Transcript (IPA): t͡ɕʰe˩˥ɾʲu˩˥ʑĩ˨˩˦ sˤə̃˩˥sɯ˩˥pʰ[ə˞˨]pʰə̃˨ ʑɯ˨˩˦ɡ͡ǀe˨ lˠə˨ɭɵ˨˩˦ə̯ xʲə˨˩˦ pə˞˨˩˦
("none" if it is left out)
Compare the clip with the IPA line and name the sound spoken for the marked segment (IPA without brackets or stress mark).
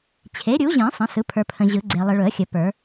ə˞˨